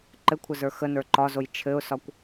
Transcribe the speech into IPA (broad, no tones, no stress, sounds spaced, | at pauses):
ǃ ɘ kʷʰ ə z ə˞ x ə n ə˞ ǃ ɒ z o j t͡ʃʰ ɘ ʊ̯ s ɒ kʷ